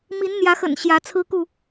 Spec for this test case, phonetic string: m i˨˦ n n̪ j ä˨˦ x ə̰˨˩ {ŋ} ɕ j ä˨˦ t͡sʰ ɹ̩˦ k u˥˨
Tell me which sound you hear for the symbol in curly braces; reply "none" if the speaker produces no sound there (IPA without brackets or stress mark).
n